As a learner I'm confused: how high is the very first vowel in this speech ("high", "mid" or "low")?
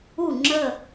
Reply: high